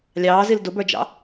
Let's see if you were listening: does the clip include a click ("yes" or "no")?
no